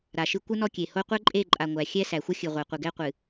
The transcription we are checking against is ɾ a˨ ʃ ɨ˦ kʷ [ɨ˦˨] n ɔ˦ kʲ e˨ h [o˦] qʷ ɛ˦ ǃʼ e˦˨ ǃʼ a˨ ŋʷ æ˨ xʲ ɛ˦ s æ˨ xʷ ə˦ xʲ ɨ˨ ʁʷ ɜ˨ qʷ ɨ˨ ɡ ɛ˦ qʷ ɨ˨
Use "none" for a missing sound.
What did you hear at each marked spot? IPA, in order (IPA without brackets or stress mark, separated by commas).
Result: ɨ˦, o˦